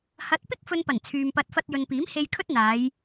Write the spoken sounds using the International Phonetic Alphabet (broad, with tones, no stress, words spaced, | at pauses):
hɐ˨˥t̚ pɪ˥k̚fɵ˧npɐ˨˩n t͡sʰyː˨mpɐ˧t̚ fɐ˧t̚jɵ˨npiː˨˥mhe˧j kʰɵ˥t̚n̪aː˨˧j